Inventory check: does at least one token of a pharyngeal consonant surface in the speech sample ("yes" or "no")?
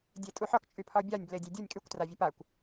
yes